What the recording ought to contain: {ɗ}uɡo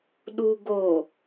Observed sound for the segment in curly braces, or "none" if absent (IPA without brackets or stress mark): ɗ